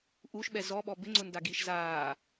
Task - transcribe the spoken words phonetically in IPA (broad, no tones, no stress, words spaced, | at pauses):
ʔuʃɓɛ zɔɓɔ bɪŋ͡ǀʊndaɡiːʃ zaː